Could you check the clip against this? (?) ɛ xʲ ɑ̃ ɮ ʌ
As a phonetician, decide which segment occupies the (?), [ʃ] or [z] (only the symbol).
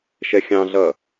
ʃ